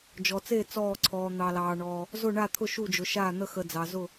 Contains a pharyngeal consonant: no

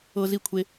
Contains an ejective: no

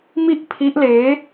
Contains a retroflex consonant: no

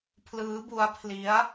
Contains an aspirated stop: yes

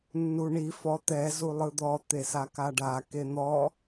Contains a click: no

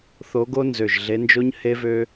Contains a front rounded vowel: yes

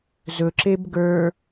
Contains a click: yes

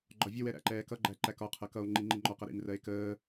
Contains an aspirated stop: yes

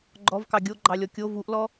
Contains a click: yes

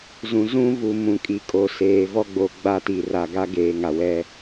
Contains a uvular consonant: no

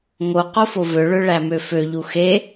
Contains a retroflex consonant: yes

